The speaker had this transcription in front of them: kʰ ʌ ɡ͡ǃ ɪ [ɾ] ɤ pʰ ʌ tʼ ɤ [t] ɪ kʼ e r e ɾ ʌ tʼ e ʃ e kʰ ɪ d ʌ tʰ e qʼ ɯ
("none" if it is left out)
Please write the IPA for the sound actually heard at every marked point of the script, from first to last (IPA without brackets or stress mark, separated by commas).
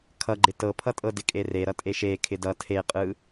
t, d